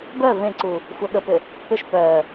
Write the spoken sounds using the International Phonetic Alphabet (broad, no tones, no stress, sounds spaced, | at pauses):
b œ v ẽ ǀ u | xʷ œ ɠ ə p ʏ | p ʏ ʃ p œ